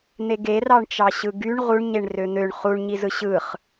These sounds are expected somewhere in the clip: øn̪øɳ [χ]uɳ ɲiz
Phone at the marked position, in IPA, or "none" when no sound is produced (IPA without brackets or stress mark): χ